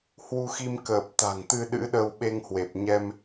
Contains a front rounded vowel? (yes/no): no